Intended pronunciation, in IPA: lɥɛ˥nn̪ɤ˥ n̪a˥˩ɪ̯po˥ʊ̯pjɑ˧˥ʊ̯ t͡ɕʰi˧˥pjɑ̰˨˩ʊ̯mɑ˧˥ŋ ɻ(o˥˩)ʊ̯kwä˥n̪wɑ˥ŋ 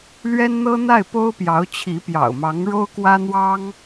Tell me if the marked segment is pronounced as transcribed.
no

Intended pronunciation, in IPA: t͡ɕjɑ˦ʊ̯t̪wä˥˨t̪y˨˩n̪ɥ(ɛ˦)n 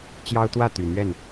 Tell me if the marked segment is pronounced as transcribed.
no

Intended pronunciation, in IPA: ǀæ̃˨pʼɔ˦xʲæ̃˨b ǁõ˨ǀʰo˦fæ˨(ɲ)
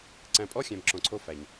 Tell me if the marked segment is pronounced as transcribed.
yes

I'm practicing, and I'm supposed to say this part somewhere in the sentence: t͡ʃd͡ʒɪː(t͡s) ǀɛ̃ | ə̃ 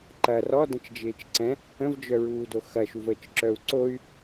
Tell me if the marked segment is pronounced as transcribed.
no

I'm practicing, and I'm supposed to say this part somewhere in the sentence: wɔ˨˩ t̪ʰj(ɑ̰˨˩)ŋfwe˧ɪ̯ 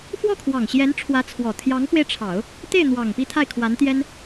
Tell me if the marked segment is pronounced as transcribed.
no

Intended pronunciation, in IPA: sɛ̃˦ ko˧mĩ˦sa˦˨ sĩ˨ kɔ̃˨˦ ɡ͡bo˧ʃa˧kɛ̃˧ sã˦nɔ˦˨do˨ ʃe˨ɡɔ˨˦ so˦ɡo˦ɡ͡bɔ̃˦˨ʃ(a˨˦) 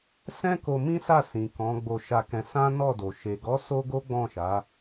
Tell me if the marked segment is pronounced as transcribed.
yes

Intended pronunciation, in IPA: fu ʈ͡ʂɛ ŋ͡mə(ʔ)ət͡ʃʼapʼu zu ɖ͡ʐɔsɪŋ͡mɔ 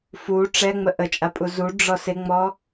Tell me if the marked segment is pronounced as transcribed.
yes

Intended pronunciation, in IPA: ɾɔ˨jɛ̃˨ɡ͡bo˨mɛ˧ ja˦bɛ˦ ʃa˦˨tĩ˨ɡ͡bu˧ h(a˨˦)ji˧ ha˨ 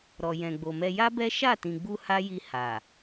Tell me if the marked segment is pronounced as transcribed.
no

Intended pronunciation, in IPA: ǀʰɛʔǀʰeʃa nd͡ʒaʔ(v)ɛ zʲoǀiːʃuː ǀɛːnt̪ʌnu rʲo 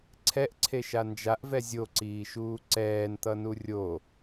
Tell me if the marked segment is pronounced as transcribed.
yes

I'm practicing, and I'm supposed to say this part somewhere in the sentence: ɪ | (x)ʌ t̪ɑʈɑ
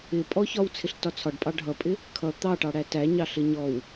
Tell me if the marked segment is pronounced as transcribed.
no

